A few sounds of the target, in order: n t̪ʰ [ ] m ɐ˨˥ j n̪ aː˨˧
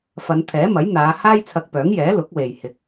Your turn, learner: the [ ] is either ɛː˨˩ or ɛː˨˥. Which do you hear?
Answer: ɛː˨˥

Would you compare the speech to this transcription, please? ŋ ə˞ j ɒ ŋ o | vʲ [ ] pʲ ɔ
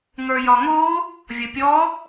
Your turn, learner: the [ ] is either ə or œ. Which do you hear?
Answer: ə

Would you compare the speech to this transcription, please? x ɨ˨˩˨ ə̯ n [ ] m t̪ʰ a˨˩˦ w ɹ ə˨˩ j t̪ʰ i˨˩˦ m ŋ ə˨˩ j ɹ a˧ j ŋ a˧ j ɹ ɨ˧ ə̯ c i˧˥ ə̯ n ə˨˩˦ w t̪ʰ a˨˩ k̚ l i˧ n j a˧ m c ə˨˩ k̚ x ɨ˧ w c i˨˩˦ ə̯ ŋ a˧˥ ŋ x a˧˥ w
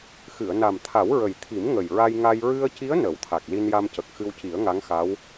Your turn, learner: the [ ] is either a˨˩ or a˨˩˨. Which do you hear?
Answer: a˨˩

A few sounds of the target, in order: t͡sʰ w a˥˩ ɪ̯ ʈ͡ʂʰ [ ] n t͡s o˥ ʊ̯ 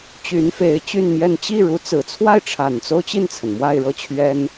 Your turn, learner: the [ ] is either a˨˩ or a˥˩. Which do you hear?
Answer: a˨˩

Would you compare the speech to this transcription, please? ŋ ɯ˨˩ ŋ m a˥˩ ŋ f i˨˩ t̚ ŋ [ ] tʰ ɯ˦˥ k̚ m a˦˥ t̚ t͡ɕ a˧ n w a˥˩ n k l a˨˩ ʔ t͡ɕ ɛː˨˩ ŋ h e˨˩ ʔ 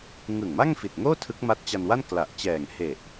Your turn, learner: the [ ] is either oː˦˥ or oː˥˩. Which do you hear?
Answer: oː˥˩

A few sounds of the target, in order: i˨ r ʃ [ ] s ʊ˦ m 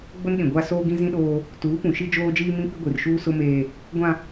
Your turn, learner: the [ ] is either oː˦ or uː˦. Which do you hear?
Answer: uː˦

